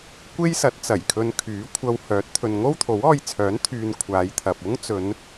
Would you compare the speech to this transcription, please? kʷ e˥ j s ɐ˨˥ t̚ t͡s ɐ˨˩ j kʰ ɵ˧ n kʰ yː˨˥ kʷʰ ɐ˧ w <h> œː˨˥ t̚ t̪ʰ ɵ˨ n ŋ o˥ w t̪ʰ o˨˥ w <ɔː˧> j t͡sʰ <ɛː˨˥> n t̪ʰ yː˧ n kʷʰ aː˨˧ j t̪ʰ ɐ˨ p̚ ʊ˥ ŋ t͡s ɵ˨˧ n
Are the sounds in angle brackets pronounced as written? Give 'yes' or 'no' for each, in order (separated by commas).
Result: yes, yes, no